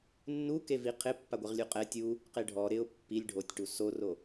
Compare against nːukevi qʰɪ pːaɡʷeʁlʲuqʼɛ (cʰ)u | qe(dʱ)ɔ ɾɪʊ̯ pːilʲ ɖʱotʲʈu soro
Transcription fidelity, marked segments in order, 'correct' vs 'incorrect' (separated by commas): incorrect, incorrect